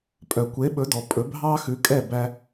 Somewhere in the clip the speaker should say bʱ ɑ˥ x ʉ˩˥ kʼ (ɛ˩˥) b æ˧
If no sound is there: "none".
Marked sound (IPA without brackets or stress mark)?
ɛ˥˩